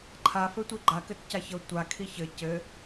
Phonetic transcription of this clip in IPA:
ǃʰ a f ɘ tʷ i ɡ͡ǃ a k ɘ t c a ç ɤ tʷ a kʰ i ç ɘ c ɘ

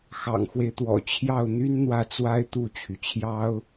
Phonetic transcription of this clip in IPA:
x ɑ̰˨˩ ŋ x w e˦ ɪ̯ t̪ w ɔ̰˨˩ t͡ɕʰ j ɑ˥˩ ʊ̯ n̪ y˥ n n̪ w ä˥˩ t͡s w a˥ ɪ̯ t̪ u˥˩ t͡ɕʰ y˩ t͡ɕʰ j ɑ˥ ʊ̯

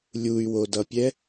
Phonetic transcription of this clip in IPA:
lʲ u y̯ w o d ʌ pʲ ɛ

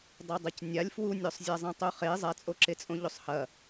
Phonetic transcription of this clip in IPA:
dˤ ɐ dˤ ɐ c nʲ a lʲ f w u nʲ o sˤ zʲ a zˤ ẽ tˤ u χ e zˤ a t͡sʼ o ǁ e t͡sʼ õ ʎ o sˤ h ɐ

